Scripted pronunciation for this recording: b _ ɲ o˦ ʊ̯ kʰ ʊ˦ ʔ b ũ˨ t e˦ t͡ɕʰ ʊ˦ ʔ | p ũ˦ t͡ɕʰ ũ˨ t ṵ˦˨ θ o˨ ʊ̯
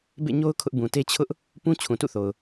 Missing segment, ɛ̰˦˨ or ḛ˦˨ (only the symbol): ḛ˦˨